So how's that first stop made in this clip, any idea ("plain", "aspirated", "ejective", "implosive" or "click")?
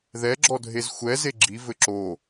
click